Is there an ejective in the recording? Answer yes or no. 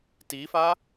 no